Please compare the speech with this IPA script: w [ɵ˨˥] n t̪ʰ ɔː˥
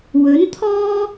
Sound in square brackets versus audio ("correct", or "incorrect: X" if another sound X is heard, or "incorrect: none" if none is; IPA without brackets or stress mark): correct